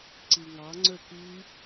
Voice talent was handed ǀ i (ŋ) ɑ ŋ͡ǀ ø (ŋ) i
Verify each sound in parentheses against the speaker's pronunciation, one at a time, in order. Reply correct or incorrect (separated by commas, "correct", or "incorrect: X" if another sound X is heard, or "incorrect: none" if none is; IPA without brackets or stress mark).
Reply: correct, incorrect: k